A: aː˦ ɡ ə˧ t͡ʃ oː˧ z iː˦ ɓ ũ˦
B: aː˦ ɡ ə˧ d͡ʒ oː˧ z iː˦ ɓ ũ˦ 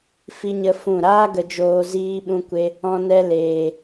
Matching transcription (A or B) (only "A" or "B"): B